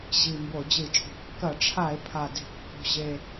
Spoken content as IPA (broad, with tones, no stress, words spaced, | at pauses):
ʑi˨˩ mbo˧˩˧d͡ʑɨ˧˩˧t͡ʃʼo̤˧˩˧ kːɐ˧˩˧ʈ͡ʂʰa˧˩˧e̯ pʰa˨˩de̤˧˩˧ kːo̤˨˩ʑe˨˩